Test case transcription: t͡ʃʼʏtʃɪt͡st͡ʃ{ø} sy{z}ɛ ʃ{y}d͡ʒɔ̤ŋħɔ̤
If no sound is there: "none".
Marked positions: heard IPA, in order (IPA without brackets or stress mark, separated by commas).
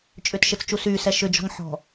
u, s, ʏ